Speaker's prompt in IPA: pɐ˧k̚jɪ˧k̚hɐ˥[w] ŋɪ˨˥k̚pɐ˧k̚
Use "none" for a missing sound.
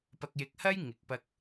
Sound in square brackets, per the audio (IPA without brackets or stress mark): j